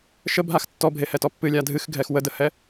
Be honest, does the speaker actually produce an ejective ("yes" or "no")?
no